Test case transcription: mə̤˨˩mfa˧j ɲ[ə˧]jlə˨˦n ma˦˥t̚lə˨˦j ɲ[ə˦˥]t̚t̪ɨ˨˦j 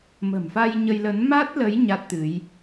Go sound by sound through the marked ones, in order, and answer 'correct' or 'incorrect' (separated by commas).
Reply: correct, incorrect